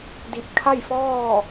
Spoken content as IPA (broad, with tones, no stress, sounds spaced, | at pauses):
d i˧˩ p̚ kʰ a˥˨ j f ɔː˥˨